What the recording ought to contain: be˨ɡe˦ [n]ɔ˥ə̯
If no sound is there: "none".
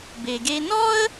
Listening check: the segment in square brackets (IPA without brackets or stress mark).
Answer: n